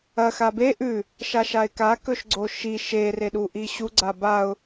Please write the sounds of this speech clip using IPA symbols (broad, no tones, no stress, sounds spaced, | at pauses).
ɐ x a b e ʔ ʉ | ʃ a ʃ a ɪ̯ k a k ɵ ʃ ɡ͡ǀ o ʃ i ʃ e r e ɗ u ʔ i ɕ u ɡ͡ǀ a b a ʊ̯